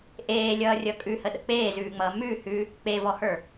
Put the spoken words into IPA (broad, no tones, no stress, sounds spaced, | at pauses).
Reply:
ʔ eː lʲ ʌː rʲ ʌ kʼ ʉ h ə ɗ ə̰ k͡p eː z ʉː ŋ͡m ʌː m ʉ h ʉ | k͡p e v ɔ h ə˞